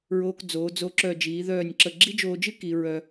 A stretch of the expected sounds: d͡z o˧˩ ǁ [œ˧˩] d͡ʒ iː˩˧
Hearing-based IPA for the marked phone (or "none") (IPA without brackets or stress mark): œ˧˩